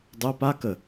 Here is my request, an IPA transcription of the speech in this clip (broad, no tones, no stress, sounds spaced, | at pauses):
dˤ œ p a k ə